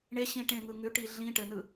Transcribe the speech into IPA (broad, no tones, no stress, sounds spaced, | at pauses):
ɳ e ɕ ĩ ʈ ẽ ŋ ɯ ŋ ʉ ʈ i ɮ ĩ ʈ ɘ n ɯ